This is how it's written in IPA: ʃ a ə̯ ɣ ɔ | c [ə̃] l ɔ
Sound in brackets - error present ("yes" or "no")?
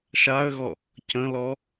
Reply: no